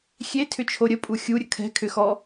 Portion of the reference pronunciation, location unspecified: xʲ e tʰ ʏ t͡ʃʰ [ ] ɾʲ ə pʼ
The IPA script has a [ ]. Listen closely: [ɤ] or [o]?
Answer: o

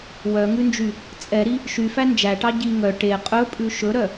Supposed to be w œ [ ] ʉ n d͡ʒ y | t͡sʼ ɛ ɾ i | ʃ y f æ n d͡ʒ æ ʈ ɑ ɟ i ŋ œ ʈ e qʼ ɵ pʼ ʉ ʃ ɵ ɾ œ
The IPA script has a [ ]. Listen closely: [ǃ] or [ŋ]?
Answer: ŋ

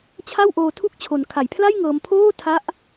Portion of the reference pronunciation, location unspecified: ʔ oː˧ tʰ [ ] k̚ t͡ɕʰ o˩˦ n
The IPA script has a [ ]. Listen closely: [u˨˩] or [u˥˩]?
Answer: u˥˩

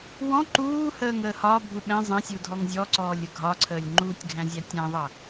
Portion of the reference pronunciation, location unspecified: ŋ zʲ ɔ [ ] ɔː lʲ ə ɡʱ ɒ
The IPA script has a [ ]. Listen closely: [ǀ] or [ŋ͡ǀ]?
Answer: ǀ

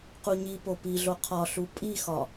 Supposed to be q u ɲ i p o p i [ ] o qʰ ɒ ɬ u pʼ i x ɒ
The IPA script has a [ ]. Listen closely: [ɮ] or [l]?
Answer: ɮ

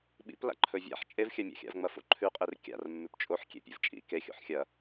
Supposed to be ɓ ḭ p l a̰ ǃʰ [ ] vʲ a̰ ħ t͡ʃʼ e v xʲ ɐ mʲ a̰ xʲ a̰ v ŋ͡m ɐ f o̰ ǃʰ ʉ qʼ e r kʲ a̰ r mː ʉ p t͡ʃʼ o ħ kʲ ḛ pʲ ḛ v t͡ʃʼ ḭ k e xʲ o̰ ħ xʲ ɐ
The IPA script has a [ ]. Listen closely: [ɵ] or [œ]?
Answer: ɵ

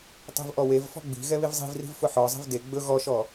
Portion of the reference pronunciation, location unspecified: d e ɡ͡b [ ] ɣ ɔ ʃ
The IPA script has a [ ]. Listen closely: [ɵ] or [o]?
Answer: ɵ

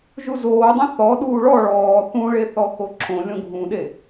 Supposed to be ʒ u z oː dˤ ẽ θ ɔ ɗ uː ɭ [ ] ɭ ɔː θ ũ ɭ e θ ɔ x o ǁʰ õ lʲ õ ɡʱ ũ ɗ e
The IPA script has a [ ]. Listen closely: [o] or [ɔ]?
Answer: ɔ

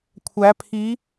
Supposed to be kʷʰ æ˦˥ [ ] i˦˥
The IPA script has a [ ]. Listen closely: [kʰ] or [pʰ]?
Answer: pʰ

